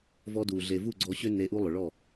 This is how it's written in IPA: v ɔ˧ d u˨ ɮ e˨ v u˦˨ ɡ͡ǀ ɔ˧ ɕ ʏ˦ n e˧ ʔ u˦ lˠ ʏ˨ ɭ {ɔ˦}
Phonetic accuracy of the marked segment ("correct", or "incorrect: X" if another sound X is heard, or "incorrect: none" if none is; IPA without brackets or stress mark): incorrect: ɔ˦˨